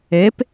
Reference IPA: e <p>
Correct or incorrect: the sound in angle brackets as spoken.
correct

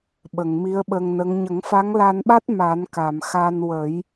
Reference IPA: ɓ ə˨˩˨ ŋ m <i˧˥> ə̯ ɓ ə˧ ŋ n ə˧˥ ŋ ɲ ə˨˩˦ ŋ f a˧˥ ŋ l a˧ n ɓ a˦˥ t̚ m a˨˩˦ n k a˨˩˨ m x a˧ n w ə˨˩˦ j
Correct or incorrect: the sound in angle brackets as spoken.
correct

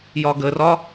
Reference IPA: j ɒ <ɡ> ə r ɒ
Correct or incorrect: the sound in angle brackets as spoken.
correct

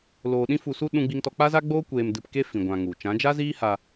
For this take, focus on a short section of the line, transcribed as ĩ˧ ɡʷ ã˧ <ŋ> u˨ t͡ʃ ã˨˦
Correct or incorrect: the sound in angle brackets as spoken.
correct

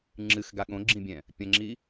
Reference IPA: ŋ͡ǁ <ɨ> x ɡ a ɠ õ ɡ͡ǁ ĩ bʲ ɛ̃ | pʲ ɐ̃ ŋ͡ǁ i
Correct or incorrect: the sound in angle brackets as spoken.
correct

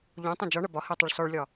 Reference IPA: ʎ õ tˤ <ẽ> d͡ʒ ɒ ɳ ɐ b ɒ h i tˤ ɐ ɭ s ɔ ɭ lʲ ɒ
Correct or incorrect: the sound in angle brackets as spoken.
correct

